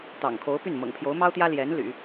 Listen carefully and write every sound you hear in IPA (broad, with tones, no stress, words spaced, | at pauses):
t̪ɑ̰˨˩ŋkʰo˧˥ʊ̯ py˥˩n mɤ̰˨˩ŋpʰjo˧˥ʊ̯mɑ˥ʊ̯t̪jä˥ ljɛ˧˥nly̰˨˩˦